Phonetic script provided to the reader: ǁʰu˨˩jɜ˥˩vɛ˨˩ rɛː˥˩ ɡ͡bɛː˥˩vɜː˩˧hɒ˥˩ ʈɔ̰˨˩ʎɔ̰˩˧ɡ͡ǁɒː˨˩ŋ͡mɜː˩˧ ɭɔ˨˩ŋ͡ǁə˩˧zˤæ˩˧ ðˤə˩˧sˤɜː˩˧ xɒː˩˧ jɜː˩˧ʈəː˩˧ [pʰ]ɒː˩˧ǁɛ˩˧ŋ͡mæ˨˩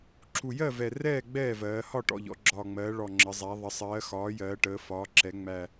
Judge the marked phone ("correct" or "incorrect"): incorrect